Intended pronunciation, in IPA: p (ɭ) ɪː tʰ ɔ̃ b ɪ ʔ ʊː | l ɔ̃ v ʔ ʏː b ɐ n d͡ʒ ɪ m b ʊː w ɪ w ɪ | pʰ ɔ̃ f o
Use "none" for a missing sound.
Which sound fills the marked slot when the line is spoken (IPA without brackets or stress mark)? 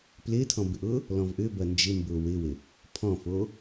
l